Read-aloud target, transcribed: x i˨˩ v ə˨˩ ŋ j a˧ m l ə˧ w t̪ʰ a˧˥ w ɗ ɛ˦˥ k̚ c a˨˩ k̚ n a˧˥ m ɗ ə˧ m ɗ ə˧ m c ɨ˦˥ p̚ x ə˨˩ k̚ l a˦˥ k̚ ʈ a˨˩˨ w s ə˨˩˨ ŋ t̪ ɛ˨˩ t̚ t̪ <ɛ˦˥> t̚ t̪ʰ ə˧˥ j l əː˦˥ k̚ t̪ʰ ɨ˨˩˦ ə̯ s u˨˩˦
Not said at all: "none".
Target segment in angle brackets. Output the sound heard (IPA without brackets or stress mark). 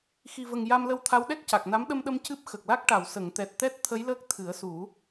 ɛ˦˥